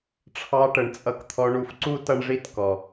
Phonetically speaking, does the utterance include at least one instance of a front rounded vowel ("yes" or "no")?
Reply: no